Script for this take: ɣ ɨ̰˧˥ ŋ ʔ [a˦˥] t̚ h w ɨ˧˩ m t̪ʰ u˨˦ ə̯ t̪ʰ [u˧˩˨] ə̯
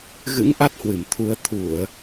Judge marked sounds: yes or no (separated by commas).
yes, yes